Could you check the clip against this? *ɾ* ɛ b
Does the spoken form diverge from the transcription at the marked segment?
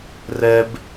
yes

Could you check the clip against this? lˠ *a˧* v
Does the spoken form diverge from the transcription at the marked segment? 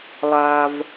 no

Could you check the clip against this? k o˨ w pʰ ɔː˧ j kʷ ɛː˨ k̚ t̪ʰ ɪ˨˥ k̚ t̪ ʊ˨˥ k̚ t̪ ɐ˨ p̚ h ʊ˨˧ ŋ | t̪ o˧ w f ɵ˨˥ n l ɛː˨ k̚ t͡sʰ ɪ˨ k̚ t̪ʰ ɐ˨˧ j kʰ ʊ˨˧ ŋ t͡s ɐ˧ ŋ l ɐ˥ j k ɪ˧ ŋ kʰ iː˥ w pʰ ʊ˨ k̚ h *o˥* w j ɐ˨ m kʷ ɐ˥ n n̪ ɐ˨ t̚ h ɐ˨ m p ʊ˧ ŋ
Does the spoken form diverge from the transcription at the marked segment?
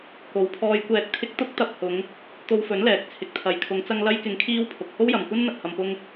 no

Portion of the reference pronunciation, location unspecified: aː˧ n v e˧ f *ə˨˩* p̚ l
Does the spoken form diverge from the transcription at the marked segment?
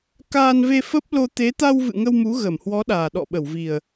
yes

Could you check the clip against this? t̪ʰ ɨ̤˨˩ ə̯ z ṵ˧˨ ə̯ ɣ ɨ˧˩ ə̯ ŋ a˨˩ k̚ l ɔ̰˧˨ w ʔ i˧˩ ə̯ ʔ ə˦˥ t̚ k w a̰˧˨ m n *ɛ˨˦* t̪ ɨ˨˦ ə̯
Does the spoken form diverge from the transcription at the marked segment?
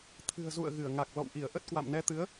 no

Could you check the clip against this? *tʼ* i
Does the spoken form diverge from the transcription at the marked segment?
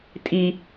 no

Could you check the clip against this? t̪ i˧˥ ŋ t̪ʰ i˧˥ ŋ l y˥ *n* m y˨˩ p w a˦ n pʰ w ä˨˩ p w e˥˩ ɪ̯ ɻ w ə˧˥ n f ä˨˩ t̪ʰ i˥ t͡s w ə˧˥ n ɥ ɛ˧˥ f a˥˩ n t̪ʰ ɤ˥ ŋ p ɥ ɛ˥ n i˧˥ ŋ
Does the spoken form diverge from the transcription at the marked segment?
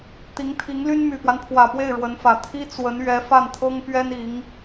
no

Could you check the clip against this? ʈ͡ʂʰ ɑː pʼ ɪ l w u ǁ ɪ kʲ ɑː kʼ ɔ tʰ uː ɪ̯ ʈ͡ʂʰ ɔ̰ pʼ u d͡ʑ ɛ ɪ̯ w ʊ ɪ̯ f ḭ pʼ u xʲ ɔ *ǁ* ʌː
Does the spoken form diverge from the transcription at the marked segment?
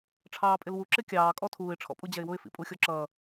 no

